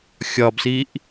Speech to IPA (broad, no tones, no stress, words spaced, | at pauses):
xʲɒbsiʔ